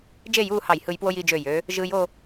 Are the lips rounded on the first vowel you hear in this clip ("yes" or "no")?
no